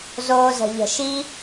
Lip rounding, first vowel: rounded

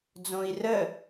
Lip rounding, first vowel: rounded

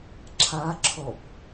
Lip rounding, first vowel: unrounded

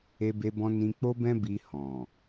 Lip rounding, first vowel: unrounded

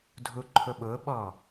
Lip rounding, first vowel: rounded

